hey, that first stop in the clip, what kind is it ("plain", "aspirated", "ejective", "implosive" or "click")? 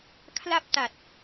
aspirated